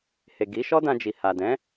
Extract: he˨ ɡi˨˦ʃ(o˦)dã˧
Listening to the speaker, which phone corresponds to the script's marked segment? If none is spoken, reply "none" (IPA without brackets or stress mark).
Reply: ɔ˦